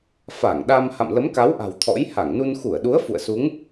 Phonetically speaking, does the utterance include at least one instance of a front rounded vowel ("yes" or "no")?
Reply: no